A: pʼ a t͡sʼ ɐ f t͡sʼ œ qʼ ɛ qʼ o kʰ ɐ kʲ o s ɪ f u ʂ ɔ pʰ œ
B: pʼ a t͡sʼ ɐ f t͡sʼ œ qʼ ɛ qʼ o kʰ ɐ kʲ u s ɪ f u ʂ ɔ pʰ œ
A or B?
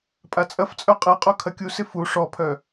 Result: B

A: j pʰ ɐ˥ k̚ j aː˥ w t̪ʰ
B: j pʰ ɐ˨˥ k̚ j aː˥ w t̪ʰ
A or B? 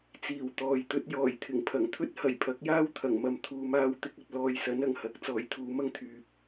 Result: B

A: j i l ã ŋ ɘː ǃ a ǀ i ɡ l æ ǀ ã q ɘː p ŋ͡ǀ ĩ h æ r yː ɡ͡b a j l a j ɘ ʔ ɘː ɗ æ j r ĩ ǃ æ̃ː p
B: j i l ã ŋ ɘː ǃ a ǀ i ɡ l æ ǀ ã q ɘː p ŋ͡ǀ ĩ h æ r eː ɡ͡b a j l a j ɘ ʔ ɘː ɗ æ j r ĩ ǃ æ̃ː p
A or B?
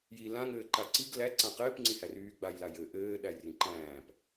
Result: A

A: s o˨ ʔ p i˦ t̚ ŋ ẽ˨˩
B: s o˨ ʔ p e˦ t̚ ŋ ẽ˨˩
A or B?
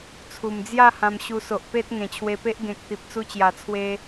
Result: B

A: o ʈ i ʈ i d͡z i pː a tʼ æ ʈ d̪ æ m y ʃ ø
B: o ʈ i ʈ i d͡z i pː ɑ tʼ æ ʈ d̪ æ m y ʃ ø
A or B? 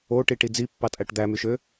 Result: B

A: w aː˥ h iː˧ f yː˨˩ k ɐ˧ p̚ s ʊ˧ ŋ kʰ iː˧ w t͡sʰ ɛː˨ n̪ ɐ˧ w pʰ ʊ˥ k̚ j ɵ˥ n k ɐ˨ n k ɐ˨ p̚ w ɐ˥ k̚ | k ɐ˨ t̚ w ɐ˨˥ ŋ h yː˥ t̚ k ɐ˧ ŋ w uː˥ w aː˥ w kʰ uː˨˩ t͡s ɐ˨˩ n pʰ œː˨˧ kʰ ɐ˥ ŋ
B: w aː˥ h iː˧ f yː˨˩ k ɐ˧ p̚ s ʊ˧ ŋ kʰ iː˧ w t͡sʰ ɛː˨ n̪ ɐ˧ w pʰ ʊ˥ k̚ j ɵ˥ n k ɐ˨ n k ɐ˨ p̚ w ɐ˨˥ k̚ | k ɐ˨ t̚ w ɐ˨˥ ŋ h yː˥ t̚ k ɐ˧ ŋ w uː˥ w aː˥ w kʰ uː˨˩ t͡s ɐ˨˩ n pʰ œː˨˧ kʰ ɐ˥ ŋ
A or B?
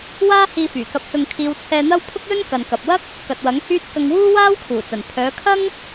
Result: A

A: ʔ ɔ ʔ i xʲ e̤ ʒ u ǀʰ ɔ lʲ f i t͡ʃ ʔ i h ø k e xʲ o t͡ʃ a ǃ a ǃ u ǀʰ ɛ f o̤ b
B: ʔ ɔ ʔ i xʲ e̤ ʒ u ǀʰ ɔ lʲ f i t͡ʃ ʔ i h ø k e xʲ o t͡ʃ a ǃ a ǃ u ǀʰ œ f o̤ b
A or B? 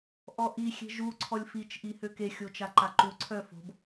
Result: B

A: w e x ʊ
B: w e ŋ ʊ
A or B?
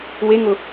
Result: B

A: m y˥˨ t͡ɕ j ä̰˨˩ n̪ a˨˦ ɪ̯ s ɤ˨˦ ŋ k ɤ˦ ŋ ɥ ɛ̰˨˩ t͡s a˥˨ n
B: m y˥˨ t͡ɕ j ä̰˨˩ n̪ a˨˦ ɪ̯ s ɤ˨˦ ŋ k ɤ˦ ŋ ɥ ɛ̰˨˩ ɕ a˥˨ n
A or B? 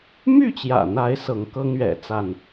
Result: A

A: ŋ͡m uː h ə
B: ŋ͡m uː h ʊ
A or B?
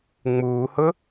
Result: B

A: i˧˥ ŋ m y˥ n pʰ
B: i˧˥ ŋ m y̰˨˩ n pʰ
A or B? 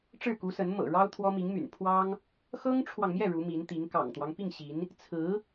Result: B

